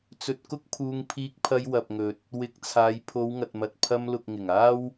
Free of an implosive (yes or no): yes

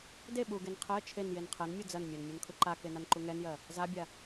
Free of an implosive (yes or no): no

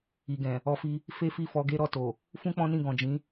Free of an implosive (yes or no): yes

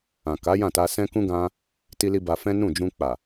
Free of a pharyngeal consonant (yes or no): yes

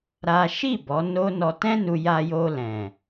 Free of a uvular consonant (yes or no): yes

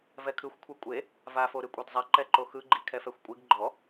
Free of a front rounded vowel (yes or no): yes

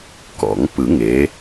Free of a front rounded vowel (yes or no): yes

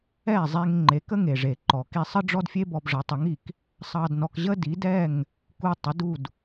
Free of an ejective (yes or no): yes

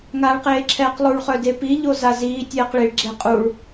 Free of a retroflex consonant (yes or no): no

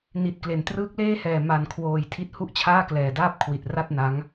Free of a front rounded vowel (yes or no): yes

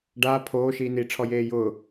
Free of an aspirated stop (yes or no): no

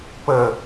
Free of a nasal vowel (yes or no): yes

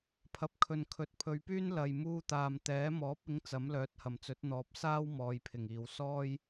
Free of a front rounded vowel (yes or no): no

